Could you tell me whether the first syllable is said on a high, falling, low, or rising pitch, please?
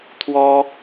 high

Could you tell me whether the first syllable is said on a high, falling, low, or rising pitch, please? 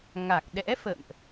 low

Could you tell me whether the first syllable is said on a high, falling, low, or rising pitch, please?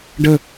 falling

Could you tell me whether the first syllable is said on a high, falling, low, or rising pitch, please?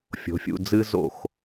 rising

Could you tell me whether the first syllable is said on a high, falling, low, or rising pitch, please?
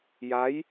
rising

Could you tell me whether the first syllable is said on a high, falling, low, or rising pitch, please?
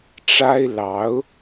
high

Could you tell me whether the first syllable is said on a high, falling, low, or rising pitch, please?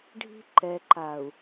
high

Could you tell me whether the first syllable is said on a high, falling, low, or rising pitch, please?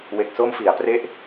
low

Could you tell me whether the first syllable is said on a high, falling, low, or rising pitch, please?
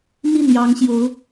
falling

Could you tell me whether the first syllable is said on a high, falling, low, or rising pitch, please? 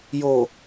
low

